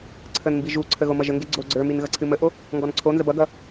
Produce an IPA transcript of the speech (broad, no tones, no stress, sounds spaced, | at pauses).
ǀʰ ə n m b i ʒ u ǀʰ ə ɣ o m ʌ ʒ ə ŋ ɡ e ɡ͡ǀ o ɡ͡ǀ ə˞ m i n ɣ ʌ ǀʰ ɨ m ə ʔ o | ŋ ɡ ɔ n ǀʰ o n z ə b ʌ ɡ ʌ